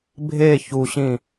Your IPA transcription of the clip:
bʱ e ç u ɕ ĩ

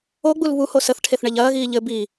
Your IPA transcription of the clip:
o ɡ͡b u l β u h o s ə θ ʈʰ e θ ɳ ɛ ʎ ɐː ɣ iː ʎ ɘ b i

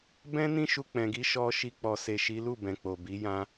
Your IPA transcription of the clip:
b ɛ̃˦ n ĩ˦ ʃ u˧ k͡p ɛ̃˨ ɡ i˧ ʃ ɔ˧ ʃ i˧ k͡p ɔ˨ s e˨ ʃ i˨˦ l u˦˨ b ɛ̃˨ k͡p o˨ b i˨˦ j ã˦

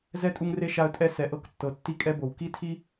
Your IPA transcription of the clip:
z ɛ˧ tʼ u˧ ŋ r e˧ ʃ a˧ ə̯ tʼ ɛ˧ s ɛ˨ ʔ ɤ˧ k tː ɤ˨˦ tː i˧ kʼ ɛ˧ b o˨ w k i˦ tʰ i˦

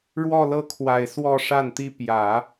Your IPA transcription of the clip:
ɻ w ɔ˥˧ l ɤ˥˩ kʰ w a˨˩ ɪ̯ s w ɔ˥˧ ʂ a˥˩ n t̪ i˥ p j ä˨˩˦

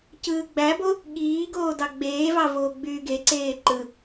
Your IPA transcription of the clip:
c ɯː ɡ͡b æ b o | ɠ iː ɡ oː d ɑ ɡ͡b eː v ɑ v oː ɡ͡b yː ɡ e ǀ eː ǃ ɯ

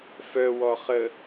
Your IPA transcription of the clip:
f œ w ɔ χ ə

